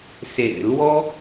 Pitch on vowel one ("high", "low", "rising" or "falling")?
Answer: low